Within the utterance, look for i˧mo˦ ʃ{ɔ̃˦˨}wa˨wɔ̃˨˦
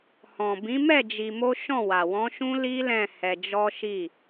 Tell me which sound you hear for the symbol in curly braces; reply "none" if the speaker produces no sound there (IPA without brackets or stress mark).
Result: ɔ̃˦˨